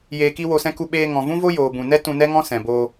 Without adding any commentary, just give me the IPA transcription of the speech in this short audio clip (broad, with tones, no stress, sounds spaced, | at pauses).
j eː˧ k i˦ w o˧ s ɛ̃˦ k u˧ ɓ eː˧ ŋ ɔ̃˨ v ũ˦ v o˦ j oː˨ b ũ˨ n ɛ˦ t ũ˧ n ɛ˦ ŋ ɔ̃˦ s ɛ̃˨ b oː˧